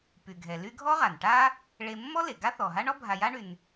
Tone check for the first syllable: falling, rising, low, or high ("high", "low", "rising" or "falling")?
low